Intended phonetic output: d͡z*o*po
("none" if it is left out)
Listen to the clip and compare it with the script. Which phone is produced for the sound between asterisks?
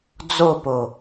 o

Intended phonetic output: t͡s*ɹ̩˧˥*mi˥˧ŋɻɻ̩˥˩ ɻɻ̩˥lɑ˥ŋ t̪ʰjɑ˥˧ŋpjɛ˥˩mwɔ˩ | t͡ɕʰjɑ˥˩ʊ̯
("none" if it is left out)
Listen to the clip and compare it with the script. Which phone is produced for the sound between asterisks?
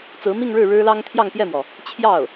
ɹ̩˧˥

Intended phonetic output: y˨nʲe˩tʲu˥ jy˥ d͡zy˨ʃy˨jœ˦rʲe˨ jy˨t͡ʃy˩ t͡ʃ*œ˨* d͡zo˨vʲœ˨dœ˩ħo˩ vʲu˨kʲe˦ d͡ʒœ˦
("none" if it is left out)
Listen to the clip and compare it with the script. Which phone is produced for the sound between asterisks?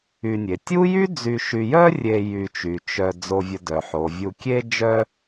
œ˨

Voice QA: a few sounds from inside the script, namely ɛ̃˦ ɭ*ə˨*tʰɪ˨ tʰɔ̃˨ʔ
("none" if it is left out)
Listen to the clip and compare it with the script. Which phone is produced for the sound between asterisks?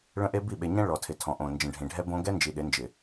ɔ˨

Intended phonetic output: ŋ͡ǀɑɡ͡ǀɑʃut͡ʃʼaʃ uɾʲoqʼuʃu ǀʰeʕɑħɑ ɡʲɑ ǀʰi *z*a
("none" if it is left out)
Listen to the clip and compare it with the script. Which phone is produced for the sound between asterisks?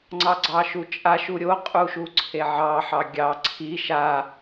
ʃ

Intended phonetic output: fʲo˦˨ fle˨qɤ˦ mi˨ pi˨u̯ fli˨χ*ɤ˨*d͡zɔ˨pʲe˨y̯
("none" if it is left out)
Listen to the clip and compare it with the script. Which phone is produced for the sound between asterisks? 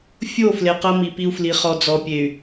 ɔ˨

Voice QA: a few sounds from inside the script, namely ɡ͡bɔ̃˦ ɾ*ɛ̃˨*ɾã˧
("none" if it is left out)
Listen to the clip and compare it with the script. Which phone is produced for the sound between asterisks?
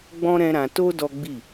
ɛ̃˦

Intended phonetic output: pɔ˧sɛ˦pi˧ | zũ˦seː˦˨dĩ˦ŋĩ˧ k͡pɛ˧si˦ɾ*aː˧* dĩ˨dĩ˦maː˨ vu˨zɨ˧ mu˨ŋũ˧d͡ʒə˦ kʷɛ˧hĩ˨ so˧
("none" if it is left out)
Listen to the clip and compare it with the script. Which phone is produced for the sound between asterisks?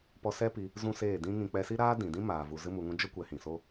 aː˦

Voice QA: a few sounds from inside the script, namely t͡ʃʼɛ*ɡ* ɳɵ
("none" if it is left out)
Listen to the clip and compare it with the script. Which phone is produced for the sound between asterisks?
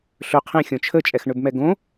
x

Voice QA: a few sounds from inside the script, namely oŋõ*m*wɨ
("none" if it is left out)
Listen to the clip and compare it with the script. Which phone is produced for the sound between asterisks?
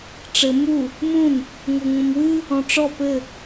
m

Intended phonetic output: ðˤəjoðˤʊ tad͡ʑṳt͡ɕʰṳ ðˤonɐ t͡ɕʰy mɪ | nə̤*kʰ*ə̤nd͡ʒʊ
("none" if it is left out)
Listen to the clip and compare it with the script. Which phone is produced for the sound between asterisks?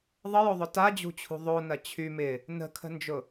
kʰ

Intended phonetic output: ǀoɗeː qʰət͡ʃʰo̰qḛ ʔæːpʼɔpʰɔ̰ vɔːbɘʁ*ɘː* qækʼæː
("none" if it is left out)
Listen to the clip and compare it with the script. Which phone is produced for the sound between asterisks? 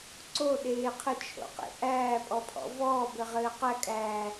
ɘː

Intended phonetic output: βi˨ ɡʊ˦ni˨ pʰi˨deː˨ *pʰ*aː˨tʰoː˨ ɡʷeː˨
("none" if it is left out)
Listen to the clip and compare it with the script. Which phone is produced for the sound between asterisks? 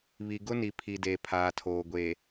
pʰ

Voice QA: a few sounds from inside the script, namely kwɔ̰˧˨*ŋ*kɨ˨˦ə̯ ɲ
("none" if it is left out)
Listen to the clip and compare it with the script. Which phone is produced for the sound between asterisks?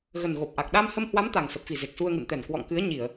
ŋ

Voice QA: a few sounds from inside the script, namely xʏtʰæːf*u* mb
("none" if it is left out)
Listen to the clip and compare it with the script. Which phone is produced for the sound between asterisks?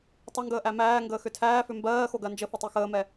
ʏ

